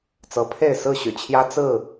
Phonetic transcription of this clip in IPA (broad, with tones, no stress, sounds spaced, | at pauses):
t͡s ɤ˨˦ pʰ e˥˨ ɪ̯ s ɹ̩˥˨ ɕ y̰˨˩ t͡ɕʰ j ä˦ t͡s ɹ̩˥˨